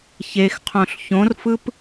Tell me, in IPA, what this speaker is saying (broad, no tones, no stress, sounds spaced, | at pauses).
ç e x qʰ õ ɬ ç õ r f ɯ p